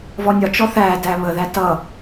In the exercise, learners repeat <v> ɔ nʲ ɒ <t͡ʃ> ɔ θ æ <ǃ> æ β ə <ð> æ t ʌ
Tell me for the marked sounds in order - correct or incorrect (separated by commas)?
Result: correct, correct, incorrect, correct